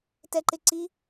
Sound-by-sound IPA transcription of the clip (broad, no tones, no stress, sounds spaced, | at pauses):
t ɛ ǃ ɪ ǀ i